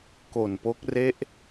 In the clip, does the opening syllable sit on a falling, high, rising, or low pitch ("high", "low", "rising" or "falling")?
low